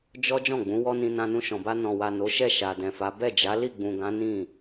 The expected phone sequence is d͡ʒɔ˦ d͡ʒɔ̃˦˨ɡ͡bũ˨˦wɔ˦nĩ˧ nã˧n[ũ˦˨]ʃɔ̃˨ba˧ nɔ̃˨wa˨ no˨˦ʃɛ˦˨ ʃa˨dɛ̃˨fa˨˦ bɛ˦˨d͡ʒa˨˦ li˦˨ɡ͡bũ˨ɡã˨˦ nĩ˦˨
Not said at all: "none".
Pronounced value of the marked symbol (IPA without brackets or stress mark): ũ˧